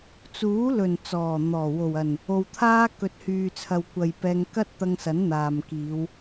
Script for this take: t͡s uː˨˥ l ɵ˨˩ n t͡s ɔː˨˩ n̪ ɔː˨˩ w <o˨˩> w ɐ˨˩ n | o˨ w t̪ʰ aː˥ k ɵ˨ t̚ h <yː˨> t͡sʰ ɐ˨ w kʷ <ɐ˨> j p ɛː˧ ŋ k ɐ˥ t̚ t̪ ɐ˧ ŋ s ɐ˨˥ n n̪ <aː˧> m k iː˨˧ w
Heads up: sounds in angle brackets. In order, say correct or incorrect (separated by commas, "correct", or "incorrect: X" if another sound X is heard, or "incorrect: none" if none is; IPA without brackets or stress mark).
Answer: correct, correct, correct, incorrect: aː˨